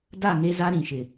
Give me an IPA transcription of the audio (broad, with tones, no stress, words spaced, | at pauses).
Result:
da˦˨ ŋe˦za˦ ɾĩ˨ʃɪ˨